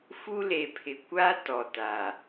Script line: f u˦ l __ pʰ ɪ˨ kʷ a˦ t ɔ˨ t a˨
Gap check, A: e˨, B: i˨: A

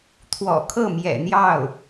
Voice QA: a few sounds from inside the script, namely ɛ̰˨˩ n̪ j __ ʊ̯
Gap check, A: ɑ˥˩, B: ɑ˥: A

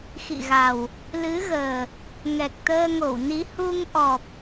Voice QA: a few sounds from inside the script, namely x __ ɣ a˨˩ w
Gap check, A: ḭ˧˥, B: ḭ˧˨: B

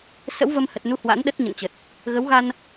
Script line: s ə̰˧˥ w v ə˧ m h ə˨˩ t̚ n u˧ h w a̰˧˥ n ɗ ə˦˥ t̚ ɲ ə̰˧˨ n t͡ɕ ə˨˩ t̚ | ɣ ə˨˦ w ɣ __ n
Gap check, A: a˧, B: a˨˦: A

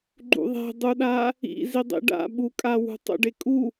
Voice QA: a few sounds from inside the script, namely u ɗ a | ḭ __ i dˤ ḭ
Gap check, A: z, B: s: A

